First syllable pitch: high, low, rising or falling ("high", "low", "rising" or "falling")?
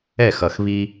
falling